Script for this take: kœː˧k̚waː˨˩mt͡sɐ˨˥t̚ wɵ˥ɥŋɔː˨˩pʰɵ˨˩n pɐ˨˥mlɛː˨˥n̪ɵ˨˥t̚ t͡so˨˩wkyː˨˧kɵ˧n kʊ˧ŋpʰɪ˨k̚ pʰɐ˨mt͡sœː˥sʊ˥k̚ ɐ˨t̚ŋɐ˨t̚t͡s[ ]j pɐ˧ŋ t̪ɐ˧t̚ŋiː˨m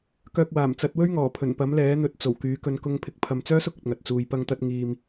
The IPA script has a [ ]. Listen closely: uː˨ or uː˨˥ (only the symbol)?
uː˨